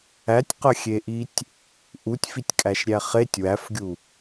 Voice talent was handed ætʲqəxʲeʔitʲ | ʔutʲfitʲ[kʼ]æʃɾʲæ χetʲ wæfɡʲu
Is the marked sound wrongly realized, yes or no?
no